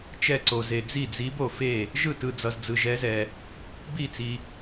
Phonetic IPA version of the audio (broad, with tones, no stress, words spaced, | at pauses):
t͡ʃɛ˥˩ǀo˨ze˨ d͡zi˥˩d͡zi˧˥bo˨fe˥˩ | ʒɯ˥˩tɯ˨d͡zʌ˨z d͡zɯ˨ʒɛ˧˥zɛ˨ | bi˥˩t͡si˨